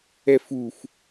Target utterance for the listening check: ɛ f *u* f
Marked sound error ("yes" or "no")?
no